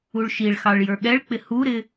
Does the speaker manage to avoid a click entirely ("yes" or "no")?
yes